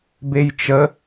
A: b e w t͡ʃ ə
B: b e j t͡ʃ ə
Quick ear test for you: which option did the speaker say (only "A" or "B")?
B